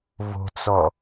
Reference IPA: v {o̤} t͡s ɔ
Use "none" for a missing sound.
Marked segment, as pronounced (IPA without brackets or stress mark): o̤